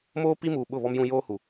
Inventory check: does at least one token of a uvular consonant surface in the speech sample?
no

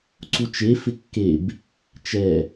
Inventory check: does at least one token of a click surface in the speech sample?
yes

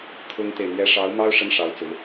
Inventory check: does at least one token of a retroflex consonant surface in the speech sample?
yes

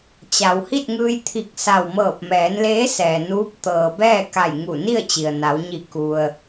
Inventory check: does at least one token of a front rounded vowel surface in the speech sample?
no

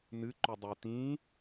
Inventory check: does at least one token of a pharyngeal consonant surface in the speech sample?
no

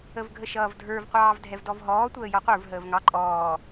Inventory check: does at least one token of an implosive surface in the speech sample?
no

